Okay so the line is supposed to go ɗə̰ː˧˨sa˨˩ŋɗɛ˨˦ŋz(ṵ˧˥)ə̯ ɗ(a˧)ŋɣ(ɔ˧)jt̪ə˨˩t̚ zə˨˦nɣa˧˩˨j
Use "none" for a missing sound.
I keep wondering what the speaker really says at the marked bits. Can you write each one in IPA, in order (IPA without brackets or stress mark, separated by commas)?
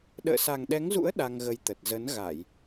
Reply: ṵ˧˥, a˧, ə˧